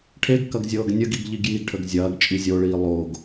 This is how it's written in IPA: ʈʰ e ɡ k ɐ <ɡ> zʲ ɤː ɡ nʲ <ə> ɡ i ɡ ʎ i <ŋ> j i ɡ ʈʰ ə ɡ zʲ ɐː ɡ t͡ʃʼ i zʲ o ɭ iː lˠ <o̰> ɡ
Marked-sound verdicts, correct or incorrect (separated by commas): correct, correct, incorrect, incorrect